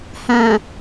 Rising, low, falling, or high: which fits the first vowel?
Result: low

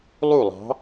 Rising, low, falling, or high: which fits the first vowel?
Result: falling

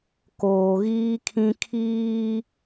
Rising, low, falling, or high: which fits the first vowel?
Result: low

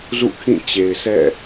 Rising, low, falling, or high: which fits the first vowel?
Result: falling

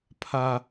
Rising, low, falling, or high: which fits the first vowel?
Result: high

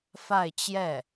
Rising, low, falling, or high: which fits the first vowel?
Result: falling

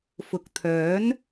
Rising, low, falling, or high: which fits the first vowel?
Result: low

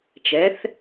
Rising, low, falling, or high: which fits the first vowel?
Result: rising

